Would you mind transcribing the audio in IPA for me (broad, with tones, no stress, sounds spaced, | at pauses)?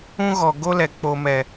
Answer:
ũ˦ ɣ ɔ˨ ɡ o˦ l ɛ˨ k͡p o˨ m ɛ˨